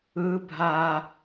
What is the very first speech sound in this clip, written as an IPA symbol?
ɯ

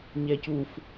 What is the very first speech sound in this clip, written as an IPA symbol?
ɲ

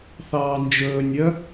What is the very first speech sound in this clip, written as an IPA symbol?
θ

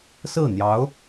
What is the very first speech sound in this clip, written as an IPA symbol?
s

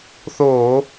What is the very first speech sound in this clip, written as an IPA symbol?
θ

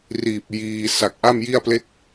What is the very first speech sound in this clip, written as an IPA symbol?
r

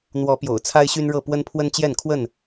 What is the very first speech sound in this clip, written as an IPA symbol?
n̪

